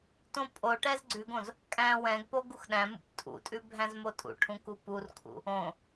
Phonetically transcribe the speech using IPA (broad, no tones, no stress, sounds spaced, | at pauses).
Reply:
t õ pʼ o ʈ ɛ z ɡ͡ǀ ʉ ɡ õ z | kʼ æ̃ w ɛ̃ ɡ p o ɡ u x ɗ æ̃ m ṵ p tʼ ṵ tʼ ʉ bʱ æ̃ z m o tʼ ṵ ʈʰ ũ k u p u r kʰ ṵ | õ